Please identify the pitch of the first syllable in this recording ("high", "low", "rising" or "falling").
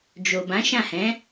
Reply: low